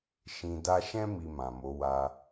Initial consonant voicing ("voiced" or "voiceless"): voiceless